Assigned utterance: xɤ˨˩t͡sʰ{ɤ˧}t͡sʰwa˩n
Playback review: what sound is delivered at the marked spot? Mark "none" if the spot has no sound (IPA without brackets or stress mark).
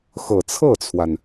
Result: ɤ˥˩